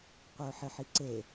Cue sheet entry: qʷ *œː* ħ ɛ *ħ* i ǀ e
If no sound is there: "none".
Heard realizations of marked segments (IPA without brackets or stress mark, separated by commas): œː, ħ